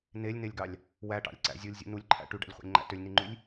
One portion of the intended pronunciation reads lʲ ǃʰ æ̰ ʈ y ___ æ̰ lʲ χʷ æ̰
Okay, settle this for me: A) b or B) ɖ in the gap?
B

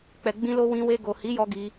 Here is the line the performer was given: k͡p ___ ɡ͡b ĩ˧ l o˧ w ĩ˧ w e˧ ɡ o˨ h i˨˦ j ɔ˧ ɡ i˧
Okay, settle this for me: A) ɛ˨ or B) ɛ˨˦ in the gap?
A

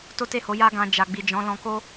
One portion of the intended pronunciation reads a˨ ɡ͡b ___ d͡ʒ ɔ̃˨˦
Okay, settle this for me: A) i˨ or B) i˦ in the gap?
A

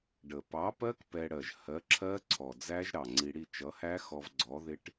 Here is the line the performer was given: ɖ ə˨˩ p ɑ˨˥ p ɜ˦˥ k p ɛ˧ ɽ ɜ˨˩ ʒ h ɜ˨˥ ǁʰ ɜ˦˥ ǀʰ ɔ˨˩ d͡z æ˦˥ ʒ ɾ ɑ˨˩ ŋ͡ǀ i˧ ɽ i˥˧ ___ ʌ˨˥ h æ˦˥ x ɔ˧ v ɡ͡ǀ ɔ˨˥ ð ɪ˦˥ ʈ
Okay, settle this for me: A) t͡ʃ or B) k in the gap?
A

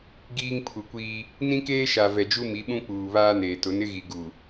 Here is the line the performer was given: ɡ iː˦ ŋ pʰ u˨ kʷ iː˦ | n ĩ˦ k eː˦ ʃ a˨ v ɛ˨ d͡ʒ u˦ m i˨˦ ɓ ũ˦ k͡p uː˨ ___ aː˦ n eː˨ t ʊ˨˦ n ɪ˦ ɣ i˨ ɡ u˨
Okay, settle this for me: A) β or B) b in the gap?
A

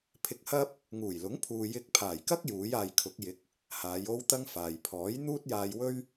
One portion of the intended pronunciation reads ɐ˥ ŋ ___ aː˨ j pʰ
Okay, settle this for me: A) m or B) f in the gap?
B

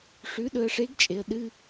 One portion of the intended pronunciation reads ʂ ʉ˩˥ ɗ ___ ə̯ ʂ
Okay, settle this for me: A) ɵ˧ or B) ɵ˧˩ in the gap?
A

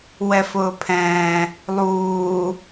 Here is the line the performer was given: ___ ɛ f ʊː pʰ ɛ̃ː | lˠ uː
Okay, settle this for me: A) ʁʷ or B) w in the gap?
B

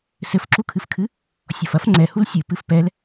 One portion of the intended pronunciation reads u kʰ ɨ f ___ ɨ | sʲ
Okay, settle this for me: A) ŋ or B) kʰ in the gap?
B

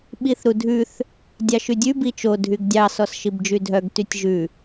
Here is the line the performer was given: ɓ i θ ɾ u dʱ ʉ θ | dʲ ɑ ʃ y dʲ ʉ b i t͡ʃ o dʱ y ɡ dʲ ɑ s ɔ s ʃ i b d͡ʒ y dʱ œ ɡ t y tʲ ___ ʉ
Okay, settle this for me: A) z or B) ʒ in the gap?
B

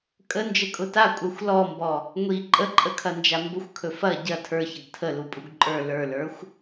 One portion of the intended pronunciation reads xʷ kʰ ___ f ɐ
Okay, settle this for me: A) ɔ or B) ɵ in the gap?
B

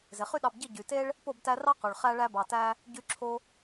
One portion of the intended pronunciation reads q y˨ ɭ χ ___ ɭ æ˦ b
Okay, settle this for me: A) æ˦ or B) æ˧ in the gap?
A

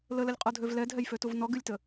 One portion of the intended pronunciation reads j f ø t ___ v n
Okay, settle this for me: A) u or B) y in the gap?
A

